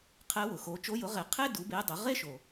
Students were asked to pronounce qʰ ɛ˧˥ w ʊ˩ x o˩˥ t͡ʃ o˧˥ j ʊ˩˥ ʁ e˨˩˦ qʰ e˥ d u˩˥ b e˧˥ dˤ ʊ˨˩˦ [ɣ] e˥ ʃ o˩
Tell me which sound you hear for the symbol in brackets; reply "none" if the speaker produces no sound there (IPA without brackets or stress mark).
ʁ